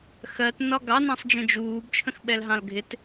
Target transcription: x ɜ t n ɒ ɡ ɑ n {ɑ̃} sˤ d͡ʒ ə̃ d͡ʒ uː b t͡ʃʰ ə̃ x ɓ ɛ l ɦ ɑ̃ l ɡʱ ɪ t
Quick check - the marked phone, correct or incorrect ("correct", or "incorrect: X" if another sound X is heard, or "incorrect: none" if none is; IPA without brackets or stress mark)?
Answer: correct